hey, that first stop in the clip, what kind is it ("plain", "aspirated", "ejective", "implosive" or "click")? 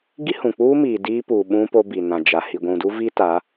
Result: plain